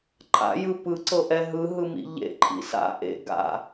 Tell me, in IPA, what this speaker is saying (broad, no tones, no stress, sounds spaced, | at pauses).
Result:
ǃʰ a̰ j ɯ p ɯ ǀ ɤ ʔ ɛ ɦ ɯ ɦ ɯ m ḭ ʎ ḛ ǃʰ ḭ s a̰ ʔ ḛ ɡ a̰